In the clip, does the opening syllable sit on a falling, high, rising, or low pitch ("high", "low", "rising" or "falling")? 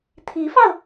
rising